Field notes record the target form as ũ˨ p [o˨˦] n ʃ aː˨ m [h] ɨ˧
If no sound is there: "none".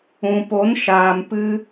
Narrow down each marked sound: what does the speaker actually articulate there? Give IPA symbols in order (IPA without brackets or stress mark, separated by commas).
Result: o˨˦, p